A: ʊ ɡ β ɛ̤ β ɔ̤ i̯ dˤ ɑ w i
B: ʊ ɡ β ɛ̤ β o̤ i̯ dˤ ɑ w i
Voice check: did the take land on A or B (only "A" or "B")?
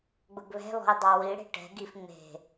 A